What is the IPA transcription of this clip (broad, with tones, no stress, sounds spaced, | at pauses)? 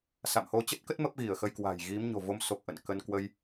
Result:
s a̰˧˨ m h o˧ t͡ɕ ə˦˥ t̚ k ə˦˥ t̚ m ə˦˥ p̚ ɣ i˧˩ ə̯ x ə˧ j k w a̤˨˩ j ɣ i˨˦ m ɲ o̤˨˩ v o˨˦ m s o˨˩ k̚ ʔ ə̰˧˨ n k ə˧ n k w ə˧ j